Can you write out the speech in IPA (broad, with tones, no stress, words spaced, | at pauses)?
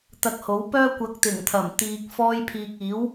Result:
t̪ɐ˧k̚ho˨˥wpœː˥ kʷɐ˨˥k̚t̪ɪ˨˩ŋt̪ʰɐ˨˩m t̪iː˨k̚ fɔː˧jpʰiː˨k̚iː˨˥w